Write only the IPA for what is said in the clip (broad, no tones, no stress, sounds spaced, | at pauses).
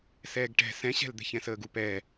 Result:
s ɛː ɡ ʈ ɛ̤ s ɛ̃ ɕ ɛ̤ l d̪ ɛ̤ ç ɛ̃ s əː ɡ u p ɛ